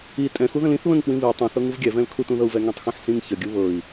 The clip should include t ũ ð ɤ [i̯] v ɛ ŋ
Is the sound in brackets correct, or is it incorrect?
incorrect